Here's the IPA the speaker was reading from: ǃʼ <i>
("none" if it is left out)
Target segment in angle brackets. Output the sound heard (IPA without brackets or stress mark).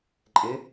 ɪ